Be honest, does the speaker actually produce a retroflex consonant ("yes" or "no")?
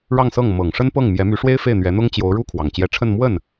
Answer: yes